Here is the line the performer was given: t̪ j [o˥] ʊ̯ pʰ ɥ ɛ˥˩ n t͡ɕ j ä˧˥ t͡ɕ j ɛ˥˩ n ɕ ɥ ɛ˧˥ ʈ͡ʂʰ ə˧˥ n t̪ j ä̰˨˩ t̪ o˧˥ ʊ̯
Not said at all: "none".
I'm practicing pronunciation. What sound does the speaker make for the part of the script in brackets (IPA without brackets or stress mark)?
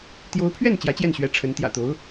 o˧˥